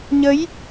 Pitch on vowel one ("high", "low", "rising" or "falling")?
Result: rising